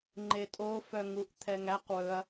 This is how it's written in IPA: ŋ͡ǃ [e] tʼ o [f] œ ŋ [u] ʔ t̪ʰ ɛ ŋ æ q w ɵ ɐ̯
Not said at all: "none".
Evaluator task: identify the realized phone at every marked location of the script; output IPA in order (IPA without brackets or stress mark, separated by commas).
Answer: e, f, u